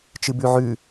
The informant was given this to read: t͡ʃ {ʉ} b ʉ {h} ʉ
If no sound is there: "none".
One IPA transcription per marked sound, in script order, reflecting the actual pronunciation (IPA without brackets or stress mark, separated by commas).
ɨ, ʕ